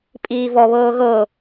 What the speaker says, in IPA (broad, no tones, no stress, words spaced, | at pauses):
pʼiːvɔβɤː ɣɤ